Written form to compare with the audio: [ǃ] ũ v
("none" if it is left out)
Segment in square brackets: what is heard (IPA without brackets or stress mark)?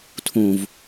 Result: tʰ